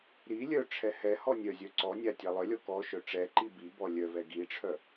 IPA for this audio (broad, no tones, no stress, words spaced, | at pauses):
ɾi lʲœʈ͡ʂʰɛ hɛhɔ nʲœzʲœ ǀɔnʲa tʲalˠœlʲɔ kɔʃœ ʈ͡ʂɛǃi bi bɔlʲœvɛ ɡiʈ͡ʂʰœ